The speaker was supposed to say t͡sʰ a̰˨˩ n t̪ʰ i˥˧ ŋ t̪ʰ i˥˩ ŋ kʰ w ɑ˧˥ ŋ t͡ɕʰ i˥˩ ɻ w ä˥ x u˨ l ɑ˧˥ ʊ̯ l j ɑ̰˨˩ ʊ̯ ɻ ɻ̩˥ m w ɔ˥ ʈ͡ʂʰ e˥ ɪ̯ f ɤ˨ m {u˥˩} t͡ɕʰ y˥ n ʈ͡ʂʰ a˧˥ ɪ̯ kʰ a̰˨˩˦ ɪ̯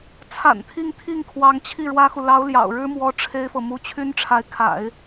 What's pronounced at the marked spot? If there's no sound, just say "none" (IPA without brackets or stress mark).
u˧˥